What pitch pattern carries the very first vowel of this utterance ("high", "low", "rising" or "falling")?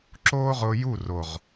high